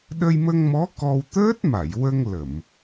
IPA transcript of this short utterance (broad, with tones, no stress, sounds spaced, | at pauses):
ɗ ə˧ j m ə˧ ŋ m ɔ˧˥ k ɔ˧ w t̪ əː˦˥ t̚ m a˨˩˨ j w ə˧ ŋ l ə˨˩˨ m